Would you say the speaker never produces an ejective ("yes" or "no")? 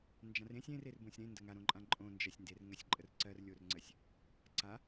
no